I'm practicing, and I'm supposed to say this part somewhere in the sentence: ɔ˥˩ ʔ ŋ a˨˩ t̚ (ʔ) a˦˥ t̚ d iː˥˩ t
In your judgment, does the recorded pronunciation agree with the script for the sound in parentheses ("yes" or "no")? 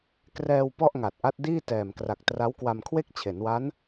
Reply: yes